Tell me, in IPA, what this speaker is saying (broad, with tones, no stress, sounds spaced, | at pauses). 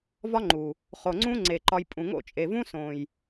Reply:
v ɒ˦ ŋ͡ǃ u˨ | χ o˨ ŋ͡ǀ ũ˧ ŋ͡ǀ e˨ ǃ ɒ˧ j pʼ ũ˨ ŋ o̰˦˨ t͡ʃʼ e˨ v ũ˦ s õ˨ j